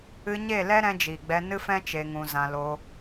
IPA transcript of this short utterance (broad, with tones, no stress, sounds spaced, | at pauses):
ɨ˧ ɲ e˦˨ l ɛ˦ ɾ ɛ̃˧ d͡ʒ iː˨ ɡ͡b ɛ˧ n ɨ˦ f ɛ̃˦ t͡ʃ e˧ ŋ ũ˧ z ã˧ l o˧